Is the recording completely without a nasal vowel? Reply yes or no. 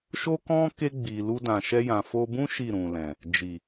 no